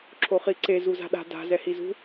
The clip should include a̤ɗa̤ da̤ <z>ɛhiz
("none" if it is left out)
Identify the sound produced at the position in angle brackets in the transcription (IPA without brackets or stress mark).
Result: z